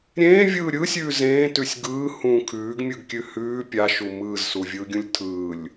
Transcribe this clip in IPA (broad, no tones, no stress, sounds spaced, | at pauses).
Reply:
ɾʲ ẽː vʲ ɯː ɾʲ ɯ sʲ ʉː z ẽː t ʉ sʲ ɡ ɯː h ũ kʰ ʉː ɡ mʲ ɯ ɡ kʲ ʉ h ʉː pʲ a ʃ u m ɯː z s u vʲ ɯː ɡʲ ũ lʲ tʰ ɯː lʲ